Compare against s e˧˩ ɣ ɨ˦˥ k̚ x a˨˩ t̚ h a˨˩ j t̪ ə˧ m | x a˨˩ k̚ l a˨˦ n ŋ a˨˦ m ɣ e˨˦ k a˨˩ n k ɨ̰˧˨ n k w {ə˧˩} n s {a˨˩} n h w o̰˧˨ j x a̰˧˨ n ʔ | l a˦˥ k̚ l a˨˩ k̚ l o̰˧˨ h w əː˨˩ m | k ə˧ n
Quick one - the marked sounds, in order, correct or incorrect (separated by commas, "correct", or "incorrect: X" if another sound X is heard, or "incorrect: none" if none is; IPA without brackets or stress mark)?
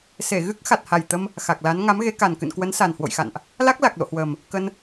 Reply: incorrect: ə˨˦, correct